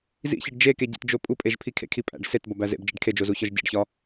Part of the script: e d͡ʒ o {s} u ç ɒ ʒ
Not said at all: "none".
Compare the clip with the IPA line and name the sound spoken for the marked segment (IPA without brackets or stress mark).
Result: z